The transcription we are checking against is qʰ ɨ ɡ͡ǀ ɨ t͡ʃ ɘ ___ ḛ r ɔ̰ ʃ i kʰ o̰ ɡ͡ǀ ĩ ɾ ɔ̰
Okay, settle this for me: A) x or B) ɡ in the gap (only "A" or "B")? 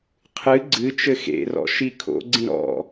A